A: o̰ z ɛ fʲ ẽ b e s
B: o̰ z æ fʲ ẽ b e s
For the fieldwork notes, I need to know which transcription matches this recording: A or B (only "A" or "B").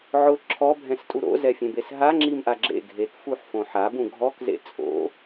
A